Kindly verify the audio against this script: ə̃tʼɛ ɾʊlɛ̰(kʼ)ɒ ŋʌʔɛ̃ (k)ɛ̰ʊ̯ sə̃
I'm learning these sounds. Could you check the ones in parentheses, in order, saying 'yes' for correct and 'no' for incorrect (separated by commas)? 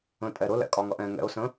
yes, no